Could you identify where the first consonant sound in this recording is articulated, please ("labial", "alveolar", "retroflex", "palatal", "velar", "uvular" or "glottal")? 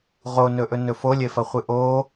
uvular